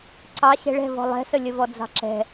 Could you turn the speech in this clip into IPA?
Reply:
ǀɑ ɕɛ̤ɭɛ̤vɔ̤ lˠɛ̤səlʲəvɔ d͡zɑ̤ǁɛ̤

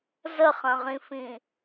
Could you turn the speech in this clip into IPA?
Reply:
zəχɐ̃ʁĩfĩ

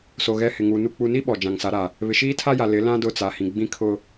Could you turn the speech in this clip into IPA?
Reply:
so˨ ɣɛ˨ hɪ˨ŋu˨ nu˨k͡pu˨ ni˦ ɓɔ˨d͡ʒã˨ŋsa˨˦ ɾa˨ | βɪ˨ʃiː˦tʰa˦ja˨ lɪ˨˦lã˦ dʊ˦˨t͡sa˨hĩ˨ɡ͡bĩ˦ kʰʊ˦

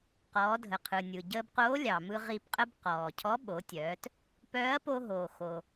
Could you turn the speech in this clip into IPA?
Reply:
qɔː˩˧dʱə˩qʰɯ˩nʲɯ˩ ɟəː˧bqoː˧˥lʲɑ˩mɯ˧ ʁi˧pqʼə˥b qɔː˩cʰɔ˧˥ ɓo˩˧tʲœː˩˧t | pœː˧˥ɐ̯po˧ɦoː˩ xo˩

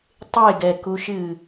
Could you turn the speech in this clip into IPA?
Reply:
tˤeɡɛkuʃɨ

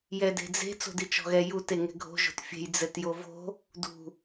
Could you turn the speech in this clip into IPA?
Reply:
jɛde̤d͡ze̤ t͡so̤dit͡ʃɔ̤ɣɛ jut eŋɛ̤ɡʱo̤ ʒo̤tfʲe̤j d͡zɛtjovo̤ | dṳ

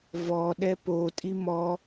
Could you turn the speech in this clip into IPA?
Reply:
vɔ ɗɛpo tʼimɔ

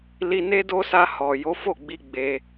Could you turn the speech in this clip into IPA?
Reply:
li˧ne˦do˦sa˧ hɔ˨ jo˨˦fo˦˨ɡ͡bi˧ ɡ͡be˧

